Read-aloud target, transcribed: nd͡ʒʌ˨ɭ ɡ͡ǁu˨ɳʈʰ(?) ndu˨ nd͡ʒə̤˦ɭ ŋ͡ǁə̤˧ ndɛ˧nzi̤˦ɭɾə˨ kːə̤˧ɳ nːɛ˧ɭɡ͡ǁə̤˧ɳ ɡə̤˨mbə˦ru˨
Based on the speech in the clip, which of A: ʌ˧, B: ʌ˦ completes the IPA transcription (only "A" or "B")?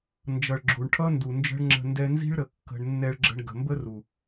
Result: B